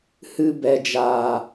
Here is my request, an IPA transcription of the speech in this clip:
h ɨ˧ b ɛ˨ d͡ʒ aː˨

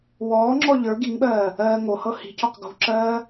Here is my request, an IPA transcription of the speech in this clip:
w ɔː ŋ͡ǁ ɔ ʎ ə˞ ɡ i ŋ ɓ ɜː | ɜː ŋ o h ɤ h i̤ c ɔ q ɡ o̤ ǁ ɜː

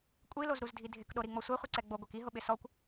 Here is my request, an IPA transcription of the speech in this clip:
kʷʼ i l o z ɾ u z dʱ i dʱ ɪ k ɗ o ɾ i ŋ͡m ɔ sʷ ɛ χʷ i ǀ ɛ ɡ͡b o ɡʷ ɛ k i ɦ ʊ ɓ ɪ s ɔ kʷ

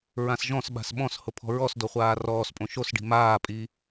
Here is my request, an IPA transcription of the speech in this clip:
ɹ ã s ʒ ɔ̃ s ɓ a̤ s ɓ ɔ̃ s h ʊ pʰ ɔ̤ ɹ ɔ s d o χʷ aː r ɔː s pʼ õ ʃ o s ɖ i̤ m aː pʼ i

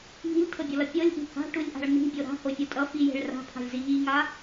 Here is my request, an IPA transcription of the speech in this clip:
ŋ i̤ lʲ tʰ ɤ bʲ ɤ l ʌ pʲ ɤ lʲ ʔ i̤ h a̤ ʈ u lʲ ʔ a̤ ɭ n̪ i̤ bʲ o ɾ a̤ h o fʲ o tʼ ʌ f i j e̤ ɭ r a̤ pʰ a̤ lʲ z i ʎ i ŋ a

